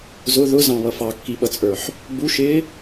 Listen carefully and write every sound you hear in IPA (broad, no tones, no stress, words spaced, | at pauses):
zʊ ðʊzɑ̃βʌ fɑkːiɓʌt͡sʼə˞ħ | buʃɪː